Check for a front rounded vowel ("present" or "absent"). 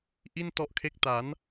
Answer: absent